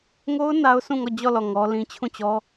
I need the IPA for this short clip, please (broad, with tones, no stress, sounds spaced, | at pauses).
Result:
ŋ o˦ ʊ̯ n a˦ ʊ̯ sʰ ũ˦˨ ŋ ɔ˦˨ d͡ʑ ɔ˦˨ l ɔ˦˨ ŋ ɔ˦ l ĩ˦ t͡ɕʰ ũ˦˨ t͡ɕ ɔ˦